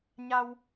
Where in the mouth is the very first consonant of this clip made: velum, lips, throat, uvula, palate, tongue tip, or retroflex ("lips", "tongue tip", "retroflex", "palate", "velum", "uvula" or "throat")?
palate